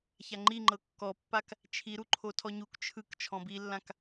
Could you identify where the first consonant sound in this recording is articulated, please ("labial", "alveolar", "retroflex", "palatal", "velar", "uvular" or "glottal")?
palatal